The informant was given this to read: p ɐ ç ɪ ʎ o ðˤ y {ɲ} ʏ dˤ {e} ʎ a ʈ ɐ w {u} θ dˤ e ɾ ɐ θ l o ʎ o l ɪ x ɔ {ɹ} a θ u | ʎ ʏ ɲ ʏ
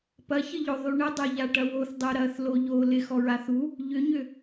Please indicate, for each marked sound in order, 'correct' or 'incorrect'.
incorrect: ɳ, incorrect: ø, incorrect: o, correct

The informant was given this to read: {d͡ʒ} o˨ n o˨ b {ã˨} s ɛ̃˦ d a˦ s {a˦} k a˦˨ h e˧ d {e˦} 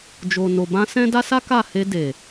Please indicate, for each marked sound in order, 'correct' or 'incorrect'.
correct, incorrect: ã˧, correct, incorrect: e˨

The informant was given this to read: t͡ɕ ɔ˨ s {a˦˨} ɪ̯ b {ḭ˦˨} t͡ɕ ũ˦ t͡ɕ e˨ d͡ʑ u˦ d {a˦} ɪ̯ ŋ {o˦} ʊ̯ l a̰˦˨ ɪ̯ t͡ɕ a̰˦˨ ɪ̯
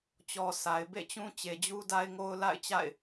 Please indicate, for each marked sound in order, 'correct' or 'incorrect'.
incorrect: a˨, incorrect: ḛ˦˨, correct, correct

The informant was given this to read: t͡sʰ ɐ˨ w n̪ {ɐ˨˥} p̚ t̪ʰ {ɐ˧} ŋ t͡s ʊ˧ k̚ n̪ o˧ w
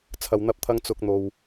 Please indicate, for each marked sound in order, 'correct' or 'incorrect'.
incorrect: ɐ˧, correct

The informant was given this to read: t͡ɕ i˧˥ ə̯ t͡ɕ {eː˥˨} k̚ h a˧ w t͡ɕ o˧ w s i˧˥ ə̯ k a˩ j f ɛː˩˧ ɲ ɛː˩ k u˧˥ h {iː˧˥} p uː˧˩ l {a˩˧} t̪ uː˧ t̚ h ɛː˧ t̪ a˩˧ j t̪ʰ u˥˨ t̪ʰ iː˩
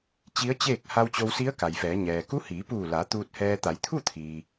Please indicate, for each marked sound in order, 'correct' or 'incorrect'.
correct, incorrect: iː˩˧, correct

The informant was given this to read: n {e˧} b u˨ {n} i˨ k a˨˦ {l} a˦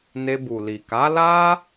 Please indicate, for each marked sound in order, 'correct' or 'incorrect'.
correct, incorrect: l, correct

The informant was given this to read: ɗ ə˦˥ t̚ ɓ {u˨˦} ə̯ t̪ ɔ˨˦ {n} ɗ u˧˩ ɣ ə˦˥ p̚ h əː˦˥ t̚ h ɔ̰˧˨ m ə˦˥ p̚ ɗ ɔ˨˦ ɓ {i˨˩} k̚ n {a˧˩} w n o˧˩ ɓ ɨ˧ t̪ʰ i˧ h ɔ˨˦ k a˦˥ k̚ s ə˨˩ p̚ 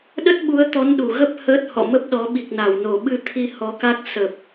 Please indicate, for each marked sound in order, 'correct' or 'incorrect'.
correct, correct, correct, correct

